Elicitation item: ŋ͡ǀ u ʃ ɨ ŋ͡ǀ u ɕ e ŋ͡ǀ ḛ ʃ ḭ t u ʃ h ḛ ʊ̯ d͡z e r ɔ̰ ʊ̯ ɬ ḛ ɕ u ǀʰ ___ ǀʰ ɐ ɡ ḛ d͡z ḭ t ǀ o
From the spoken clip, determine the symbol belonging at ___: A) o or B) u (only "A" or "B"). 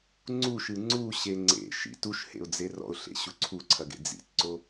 B